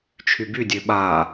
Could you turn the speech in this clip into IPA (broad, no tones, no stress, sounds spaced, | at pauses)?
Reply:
t͡ʃʰ y b y dʲ ø ɓ a